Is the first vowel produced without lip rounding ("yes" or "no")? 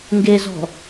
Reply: yes